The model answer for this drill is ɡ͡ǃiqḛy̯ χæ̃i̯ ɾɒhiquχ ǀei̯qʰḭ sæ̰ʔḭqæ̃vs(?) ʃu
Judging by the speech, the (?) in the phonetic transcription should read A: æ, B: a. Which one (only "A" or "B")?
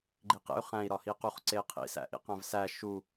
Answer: A